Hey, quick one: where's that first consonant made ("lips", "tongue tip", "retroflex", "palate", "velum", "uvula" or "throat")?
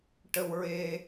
retroflex